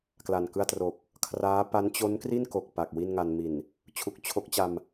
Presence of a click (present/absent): absent